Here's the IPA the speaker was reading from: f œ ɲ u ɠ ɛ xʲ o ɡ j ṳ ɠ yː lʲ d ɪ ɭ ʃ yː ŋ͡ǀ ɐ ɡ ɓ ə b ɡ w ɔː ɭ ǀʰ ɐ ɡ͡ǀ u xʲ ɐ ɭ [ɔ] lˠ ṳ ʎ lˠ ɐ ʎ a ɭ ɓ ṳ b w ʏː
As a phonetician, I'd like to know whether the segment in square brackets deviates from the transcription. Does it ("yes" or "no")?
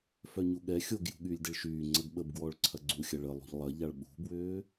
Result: yes